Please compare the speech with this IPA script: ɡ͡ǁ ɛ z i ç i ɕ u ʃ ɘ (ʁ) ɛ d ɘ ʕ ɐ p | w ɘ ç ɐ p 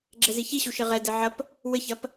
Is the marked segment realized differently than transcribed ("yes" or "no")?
no